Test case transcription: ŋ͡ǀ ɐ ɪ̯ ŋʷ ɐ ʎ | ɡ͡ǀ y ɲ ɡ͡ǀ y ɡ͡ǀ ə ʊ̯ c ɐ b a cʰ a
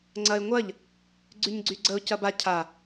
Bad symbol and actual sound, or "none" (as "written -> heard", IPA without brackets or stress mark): none